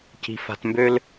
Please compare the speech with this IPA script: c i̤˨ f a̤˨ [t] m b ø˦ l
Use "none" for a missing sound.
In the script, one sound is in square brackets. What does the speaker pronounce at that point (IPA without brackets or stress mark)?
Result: t